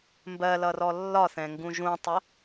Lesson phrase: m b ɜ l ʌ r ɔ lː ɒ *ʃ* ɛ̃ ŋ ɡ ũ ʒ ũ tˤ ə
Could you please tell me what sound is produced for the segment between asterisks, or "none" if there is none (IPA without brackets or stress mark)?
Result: θ